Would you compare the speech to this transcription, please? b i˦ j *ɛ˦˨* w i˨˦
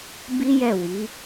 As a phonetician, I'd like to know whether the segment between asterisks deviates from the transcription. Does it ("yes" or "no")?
no